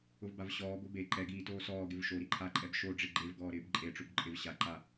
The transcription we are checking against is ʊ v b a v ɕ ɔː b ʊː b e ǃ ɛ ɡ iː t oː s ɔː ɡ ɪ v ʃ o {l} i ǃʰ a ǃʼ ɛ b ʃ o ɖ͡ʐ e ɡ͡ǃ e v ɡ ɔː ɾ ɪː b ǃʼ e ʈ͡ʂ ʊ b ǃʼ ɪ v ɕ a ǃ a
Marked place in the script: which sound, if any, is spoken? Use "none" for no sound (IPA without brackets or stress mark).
ɾ